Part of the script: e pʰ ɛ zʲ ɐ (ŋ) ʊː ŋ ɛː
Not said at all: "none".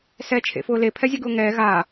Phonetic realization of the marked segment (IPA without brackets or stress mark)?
ɡ